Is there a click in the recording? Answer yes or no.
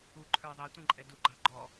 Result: yes